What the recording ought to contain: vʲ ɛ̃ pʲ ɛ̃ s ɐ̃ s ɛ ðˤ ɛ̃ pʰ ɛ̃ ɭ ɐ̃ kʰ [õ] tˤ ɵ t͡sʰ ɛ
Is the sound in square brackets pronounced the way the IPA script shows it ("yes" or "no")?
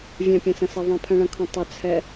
yes